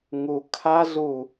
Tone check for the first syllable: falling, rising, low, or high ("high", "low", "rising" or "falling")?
low